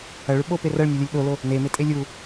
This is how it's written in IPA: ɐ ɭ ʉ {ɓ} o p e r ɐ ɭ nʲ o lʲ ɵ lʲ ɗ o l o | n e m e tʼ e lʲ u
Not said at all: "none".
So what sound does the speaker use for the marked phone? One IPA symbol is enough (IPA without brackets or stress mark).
ɓ